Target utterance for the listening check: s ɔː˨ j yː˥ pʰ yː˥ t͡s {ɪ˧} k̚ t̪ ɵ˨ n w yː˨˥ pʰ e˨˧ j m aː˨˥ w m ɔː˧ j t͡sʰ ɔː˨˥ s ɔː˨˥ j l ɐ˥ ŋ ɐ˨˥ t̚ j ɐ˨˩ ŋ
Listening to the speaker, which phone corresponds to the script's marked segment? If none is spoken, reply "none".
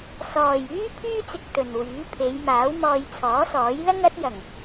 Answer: ɪ˧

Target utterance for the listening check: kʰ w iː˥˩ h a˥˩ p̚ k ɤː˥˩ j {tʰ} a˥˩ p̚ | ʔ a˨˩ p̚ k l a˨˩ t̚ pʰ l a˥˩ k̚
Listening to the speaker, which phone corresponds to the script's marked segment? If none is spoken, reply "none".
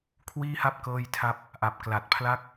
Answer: tʰ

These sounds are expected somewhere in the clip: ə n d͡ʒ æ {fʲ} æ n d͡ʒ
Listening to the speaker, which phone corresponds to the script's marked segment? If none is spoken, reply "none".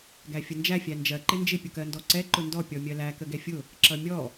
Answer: fʲ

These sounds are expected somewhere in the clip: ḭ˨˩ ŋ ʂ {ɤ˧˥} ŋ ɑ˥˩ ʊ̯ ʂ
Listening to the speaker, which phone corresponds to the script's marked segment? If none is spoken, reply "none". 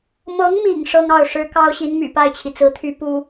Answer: ɤ˥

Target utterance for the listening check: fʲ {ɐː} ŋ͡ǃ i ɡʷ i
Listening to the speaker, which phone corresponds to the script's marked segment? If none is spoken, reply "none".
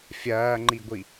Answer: ɐː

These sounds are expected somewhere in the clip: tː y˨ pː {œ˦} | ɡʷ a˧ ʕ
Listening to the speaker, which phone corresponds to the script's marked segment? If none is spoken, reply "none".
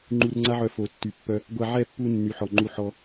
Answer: œ˧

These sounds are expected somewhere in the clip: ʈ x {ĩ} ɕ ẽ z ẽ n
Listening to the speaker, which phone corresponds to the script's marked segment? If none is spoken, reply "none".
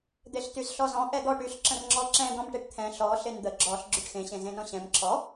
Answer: ẽ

